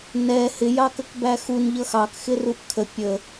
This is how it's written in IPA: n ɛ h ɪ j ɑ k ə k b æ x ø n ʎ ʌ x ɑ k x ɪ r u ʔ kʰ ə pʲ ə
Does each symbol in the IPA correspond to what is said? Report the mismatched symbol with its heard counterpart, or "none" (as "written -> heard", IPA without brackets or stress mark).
ø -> u